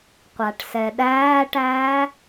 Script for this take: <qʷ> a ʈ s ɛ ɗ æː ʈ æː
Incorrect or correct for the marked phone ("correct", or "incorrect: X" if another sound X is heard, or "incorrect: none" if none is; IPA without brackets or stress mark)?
correct